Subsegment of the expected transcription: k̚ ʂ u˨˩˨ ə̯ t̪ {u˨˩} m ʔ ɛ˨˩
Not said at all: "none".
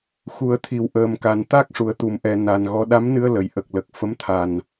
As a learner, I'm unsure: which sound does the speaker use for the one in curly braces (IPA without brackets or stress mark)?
u˨˩˨